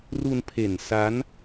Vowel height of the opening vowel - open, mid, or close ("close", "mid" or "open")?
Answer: close